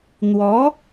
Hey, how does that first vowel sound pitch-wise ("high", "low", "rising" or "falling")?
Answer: rising